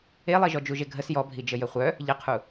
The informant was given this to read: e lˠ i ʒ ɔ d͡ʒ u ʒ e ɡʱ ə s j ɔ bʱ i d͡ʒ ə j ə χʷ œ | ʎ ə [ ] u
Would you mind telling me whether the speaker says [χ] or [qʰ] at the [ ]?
qʰ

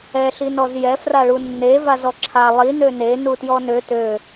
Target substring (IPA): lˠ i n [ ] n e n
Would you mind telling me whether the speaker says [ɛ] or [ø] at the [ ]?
ø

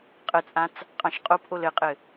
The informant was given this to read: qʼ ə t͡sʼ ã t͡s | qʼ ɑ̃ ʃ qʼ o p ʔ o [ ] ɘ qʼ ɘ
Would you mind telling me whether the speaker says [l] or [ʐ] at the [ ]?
l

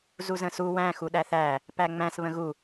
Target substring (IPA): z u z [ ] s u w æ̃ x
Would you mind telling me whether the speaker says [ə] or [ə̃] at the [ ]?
ə̃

